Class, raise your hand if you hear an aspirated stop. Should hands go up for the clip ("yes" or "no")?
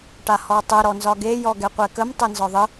no